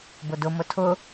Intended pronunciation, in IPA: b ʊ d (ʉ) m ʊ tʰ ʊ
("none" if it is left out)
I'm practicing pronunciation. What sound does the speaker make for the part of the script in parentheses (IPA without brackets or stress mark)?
ʊ